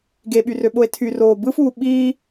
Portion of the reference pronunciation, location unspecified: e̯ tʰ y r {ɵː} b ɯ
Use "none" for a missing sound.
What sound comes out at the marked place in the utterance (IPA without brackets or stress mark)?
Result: oː